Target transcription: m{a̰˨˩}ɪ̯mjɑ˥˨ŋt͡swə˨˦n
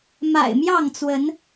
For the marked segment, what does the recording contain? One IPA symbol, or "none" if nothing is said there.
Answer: a̰˨˩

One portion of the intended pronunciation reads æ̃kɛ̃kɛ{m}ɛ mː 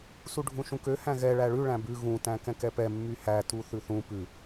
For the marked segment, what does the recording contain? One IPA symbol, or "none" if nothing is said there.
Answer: p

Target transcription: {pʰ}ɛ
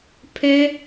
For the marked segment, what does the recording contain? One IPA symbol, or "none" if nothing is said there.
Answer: pʰ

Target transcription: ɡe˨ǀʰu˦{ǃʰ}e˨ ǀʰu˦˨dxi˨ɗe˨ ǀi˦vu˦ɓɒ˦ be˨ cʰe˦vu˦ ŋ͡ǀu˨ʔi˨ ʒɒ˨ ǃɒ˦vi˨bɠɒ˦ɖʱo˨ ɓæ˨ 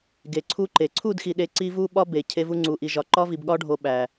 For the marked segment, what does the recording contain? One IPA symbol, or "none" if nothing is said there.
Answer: ǃ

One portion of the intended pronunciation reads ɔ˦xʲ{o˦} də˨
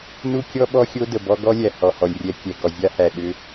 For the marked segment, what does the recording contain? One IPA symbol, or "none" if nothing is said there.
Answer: o˦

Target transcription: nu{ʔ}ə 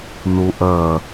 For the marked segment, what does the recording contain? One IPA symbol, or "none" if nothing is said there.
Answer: ʔ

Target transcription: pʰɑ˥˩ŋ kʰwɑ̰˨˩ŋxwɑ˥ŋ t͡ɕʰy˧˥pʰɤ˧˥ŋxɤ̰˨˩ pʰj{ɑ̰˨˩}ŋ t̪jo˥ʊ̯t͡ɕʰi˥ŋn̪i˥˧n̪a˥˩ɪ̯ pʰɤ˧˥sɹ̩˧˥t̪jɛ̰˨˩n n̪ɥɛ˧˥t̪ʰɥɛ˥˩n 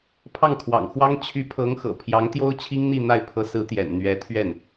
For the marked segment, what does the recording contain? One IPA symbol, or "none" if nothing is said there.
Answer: ɑ˧˥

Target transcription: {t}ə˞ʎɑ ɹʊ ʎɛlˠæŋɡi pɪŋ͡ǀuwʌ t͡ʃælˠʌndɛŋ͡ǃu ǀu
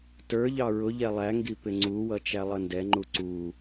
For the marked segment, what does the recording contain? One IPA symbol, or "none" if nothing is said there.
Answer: t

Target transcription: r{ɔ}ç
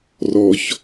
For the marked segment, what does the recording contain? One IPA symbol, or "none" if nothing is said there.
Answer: ɔ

